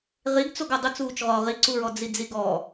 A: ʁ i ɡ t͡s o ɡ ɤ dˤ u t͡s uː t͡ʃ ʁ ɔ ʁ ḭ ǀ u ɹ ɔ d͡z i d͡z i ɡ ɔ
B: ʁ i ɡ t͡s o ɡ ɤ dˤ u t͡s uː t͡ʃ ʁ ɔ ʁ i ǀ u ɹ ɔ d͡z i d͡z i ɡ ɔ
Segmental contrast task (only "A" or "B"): B